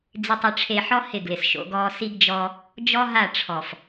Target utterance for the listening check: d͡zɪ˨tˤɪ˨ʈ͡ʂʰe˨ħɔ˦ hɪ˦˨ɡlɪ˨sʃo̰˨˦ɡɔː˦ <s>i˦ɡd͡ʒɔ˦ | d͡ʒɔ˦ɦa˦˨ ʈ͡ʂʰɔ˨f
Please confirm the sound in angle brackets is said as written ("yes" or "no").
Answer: yes